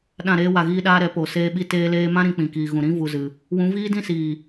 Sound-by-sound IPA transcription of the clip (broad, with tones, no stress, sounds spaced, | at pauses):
ɗ ã˦˨ ɾ eː˦ w a˧ ɣ iː˦ ɗ aː˦ ɾ ɛ˨˦ p o˨ s eː˧ ɓ i˧ t eː˧ l eː˧ m ã˦ ɾ ĩ˧ k͡p ĩ˨ k iː˨ ɣ ũ˨ ɾ ĩ˦ v u˧ z ɨ˨ | w ũ˨˦ v iː˦ d ĩ˦ s iː˨